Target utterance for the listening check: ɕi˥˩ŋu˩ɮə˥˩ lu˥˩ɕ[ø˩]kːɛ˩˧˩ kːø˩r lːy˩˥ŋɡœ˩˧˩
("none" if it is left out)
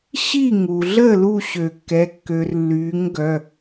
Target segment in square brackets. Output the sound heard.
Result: ø˩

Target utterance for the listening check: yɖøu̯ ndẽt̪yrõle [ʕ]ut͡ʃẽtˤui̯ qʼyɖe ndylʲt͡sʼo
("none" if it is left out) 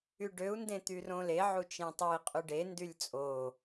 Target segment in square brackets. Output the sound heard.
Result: ʕ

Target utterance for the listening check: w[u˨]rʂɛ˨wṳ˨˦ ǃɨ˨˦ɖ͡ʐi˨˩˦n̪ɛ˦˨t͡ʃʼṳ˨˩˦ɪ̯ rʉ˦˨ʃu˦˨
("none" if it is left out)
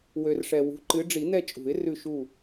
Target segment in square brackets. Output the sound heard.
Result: ø˨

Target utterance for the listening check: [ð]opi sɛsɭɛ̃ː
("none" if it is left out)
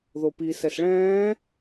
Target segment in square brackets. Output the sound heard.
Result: ð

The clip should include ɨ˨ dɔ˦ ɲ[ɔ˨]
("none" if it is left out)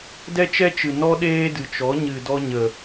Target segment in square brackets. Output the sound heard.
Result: ə˨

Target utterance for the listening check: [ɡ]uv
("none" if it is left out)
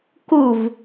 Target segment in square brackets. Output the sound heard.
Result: k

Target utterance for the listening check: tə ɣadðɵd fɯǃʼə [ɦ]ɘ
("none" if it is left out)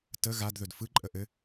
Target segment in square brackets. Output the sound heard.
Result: ʔ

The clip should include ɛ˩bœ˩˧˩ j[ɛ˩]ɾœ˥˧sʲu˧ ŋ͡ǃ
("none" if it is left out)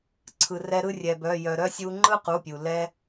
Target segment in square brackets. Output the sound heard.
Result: œ˩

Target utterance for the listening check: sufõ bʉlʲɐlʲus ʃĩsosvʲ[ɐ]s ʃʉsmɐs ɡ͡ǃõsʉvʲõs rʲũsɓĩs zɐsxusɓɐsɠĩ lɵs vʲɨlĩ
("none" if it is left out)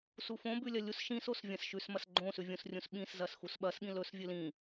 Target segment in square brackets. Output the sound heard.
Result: ɐ̃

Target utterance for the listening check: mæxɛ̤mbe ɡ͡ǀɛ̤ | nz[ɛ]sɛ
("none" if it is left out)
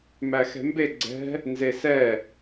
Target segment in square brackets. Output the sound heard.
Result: e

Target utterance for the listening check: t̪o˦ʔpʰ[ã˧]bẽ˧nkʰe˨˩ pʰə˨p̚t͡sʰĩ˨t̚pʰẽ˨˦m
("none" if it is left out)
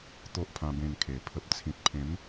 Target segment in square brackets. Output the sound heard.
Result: ã˧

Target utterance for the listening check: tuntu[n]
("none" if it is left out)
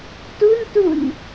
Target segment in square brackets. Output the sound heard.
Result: n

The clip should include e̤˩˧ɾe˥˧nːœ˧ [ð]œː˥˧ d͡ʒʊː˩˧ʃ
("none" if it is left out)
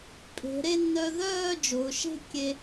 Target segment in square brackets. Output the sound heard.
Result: ð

